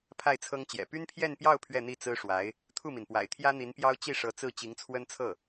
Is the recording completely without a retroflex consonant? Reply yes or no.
no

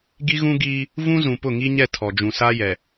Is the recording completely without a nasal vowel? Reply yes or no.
no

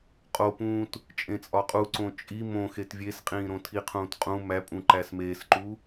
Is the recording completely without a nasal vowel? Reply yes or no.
no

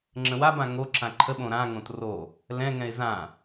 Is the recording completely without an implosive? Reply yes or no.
no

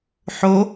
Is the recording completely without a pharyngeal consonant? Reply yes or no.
no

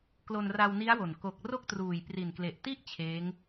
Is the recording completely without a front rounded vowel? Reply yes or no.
yes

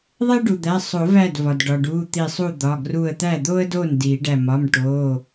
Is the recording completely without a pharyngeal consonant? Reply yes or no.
yes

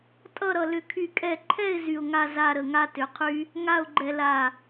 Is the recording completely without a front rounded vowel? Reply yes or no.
no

